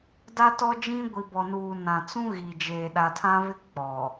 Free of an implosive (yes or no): no